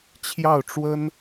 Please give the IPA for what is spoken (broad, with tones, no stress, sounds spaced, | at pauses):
t͡ɕʰ j ɑ˥˩ ʊ̯ ʈ͡ʂ w ə˥ n